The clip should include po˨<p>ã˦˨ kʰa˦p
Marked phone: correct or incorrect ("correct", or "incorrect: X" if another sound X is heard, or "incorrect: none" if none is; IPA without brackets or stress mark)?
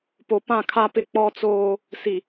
correct